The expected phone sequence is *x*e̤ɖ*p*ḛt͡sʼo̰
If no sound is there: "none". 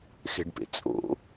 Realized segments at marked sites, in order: x, p

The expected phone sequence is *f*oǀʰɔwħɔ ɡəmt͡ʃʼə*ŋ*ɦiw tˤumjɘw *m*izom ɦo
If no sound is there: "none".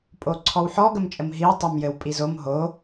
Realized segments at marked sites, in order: pʼ, m, pʼ

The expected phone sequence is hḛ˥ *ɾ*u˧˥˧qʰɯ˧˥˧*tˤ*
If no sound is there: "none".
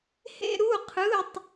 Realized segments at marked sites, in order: ɾ, tˤ

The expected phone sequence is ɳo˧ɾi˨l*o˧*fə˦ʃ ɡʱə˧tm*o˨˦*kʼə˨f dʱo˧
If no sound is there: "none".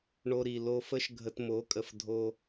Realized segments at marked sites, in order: o˧, o˨˦

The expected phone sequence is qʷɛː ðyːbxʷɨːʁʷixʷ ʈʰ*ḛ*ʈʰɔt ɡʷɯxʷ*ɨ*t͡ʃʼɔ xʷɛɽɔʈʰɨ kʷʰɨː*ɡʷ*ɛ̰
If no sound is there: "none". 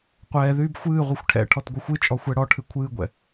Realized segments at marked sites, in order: ɛ̰, ɨ, ɡʷ

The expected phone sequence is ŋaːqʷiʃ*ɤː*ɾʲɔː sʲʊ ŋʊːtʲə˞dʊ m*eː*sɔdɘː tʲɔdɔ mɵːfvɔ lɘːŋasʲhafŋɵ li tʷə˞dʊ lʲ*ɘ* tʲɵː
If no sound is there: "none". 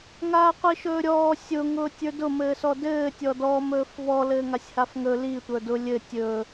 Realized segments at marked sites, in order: ɵː, ɘː, ɘ

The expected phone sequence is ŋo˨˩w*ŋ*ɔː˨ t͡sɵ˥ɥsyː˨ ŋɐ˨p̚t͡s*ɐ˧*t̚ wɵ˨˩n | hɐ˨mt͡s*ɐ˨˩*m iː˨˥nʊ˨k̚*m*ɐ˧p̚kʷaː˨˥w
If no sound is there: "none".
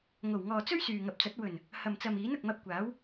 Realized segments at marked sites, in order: ŋ, ɐ˨˥, ɐ˨, m

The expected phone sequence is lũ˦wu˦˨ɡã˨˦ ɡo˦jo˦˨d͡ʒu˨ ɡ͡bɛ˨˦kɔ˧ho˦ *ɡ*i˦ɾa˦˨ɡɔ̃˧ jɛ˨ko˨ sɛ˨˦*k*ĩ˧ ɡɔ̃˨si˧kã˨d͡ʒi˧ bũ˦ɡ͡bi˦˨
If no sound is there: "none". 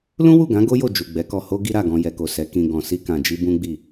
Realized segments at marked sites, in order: ɡ, k

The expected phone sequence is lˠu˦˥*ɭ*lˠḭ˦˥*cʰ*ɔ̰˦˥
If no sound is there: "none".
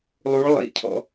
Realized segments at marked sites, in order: ɭ, cʰ

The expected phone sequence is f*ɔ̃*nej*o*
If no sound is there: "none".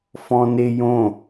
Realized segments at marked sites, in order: ɔ̃, õ

